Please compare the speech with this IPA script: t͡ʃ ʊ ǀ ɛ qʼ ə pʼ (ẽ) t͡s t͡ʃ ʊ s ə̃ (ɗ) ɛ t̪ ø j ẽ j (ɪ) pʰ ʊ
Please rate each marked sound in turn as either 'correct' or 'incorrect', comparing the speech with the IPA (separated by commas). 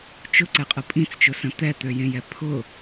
incorrect, incorrect, incorrect